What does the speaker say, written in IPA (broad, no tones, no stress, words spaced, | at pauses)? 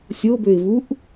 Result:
sʲo bøɪ̯vuʔ